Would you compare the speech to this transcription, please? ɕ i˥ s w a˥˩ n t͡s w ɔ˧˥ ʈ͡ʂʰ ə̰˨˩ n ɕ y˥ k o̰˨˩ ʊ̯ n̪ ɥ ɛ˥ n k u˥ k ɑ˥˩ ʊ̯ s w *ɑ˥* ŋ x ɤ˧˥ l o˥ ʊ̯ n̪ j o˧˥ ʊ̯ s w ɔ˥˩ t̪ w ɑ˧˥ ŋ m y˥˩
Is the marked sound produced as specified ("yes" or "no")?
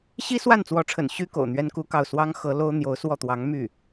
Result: yes